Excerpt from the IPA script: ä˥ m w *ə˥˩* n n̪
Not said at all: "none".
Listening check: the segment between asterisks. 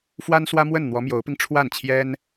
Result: ə˥˩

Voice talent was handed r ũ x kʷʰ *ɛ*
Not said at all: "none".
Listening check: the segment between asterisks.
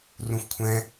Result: ɛ̃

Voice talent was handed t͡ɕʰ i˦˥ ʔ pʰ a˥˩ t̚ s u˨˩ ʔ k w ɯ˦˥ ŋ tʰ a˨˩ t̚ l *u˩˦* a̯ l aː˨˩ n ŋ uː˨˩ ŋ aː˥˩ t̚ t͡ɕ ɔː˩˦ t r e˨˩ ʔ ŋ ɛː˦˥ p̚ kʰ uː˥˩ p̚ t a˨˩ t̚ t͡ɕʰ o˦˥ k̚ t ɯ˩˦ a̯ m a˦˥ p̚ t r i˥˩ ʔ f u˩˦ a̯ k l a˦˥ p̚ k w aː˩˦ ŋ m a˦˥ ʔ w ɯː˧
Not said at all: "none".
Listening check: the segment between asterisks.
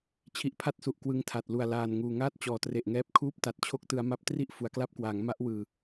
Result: u˨˩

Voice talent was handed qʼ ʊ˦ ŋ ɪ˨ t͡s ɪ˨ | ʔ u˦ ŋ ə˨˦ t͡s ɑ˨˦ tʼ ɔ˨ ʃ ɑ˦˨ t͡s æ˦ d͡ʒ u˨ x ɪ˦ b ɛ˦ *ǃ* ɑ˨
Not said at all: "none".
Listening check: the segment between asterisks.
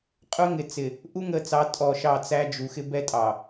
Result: tʼ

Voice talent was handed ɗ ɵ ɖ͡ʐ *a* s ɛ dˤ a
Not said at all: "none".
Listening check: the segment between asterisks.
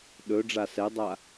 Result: a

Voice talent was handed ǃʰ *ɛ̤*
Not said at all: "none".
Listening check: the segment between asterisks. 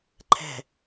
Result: ɛ̤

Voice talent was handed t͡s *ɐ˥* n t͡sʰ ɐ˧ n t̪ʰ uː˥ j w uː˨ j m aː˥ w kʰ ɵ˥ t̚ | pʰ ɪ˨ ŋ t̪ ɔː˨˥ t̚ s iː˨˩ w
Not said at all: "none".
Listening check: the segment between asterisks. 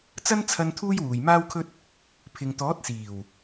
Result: ɐ˥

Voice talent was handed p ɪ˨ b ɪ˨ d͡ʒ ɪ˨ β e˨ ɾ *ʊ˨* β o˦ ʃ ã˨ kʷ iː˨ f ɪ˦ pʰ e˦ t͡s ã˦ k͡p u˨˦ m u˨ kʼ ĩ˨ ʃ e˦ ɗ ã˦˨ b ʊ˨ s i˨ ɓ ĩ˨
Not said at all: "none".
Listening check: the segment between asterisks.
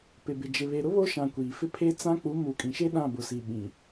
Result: ʊ˦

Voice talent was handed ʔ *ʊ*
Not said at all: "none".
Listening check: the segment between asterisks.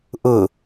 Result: ʊ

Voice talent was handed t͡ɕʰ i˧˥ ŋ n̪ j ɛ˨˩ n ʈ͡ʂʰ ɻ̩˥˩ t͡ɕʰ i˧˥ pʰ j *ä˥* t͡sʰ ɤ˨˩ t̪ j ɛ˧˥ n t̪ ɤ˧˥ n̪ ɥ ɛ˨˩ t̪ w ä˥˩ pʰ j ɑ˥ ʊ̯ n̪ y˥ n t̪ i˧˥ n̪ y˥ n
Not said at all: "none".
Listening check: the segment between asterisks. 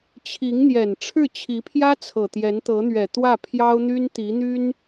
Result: ä˥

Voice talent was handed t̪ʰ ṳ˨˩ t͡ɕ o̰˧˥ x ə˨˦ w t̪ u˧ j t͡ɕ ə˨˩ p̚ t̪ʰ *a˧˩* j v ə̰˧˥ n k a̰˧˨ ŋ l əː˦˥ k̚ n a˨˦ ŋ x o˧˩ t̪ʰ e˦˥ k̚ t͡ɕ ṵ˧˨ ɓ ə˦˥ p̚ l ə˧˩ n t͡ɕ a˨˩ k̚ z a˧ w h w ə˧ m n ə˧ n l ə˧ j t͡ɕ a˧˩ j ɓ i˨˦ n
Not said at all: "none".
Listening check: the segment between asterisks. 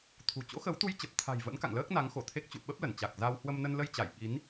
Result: a̤˨˩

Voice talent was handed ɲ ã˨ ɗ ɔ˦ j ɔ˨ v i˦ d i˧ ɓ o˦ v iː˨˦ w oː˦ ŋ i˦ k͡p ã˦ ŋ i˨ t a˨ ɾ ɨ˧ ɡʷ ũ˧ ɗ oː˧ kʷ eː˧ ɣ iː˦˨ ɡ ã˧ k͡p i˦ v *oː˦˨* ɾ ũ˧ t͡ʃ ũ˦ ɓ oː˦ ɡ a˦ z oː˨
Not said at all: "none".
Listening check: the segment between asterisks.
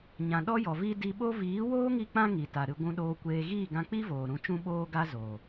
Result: oː˨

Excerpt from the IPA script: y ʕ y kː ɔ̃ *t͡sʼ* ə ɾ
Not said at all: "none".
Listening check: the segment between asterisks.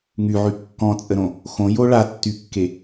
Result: t͡sʼ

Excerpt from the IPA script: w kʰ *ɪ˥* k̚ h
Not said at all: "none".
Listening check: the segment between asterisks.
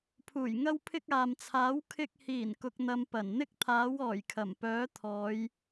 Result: ɪ˨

